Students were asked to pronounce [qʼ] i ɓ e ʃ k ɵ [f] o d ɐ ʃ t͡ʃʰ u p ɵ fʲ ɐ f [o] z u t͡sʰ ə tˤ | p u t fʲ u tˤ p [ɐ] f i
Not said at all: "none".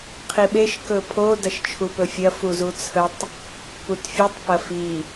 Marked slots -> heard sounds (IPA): qʰ, pʰ, u, ɐ

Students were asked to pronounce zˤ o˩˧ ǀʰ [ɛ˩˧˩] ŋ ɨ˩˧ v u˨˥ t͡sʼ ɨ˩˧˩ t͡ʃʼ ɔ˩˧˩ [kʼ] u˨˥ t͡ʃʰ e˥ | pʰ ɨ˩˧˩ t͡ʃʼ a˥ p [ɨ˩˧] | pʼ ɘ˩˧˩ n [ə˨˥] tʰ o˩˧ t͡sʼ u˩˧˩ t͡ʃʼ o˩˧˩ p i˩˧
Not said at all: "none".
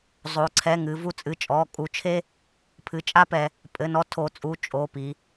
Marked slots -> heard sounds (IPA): ɛ˩˧˩, kʼ, ɛ˩˧, ɔ˨˥

